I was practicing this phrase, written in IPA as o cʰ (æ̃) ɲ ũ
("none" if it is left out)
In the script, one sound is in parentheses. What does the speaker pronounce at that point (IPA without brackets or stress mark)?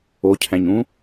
æ̃